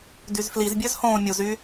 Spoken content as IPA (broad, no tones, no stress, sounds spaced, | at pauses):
d y z f l i z bʲ ø z h õː mʲ u z y